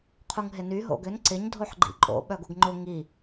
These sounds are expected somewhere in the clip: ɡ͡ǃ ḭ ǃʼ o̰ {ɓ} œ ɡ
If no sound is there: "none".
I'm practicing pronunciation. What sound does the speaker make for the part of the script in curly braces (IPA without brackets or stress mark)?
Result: ɓ